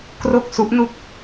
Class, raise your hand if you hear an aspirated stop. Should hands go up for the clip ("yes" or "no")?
no